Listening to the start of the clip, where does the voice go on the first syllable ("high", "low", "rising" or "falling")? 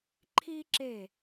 high